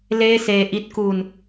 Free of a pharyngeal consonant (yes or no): yes